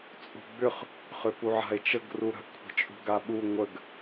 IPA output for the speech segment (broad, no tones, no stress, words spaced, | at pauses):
t͡sʼṳɡ͡bʏχ | χʏpuʕa̤e̯t͡ʃəɡ ruɾə̤ʔ kʷʰə̤t͡ʃʼṳɡaɓu ŋʷəɡ